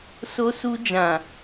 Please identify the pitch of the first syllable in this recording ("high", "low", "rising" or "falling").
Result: high